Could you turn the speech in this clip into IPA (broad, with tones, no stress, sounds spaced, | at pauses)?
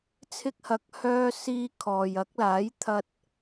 t͡sʰ ɪ˧ k̚ h ɐ˨˥ k̚ h œː˧ s iː˧ kʰ ɔː˨ j ɐ˨˥ k̚ l aː˨˥ j t̪ʰ ɐ˧ t̚